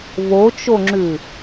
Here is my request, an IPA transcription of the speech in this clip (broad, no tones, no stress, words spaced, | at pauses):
βot͡ʃoŋ͡ǁʉ